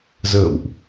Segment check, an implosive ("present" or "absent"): absent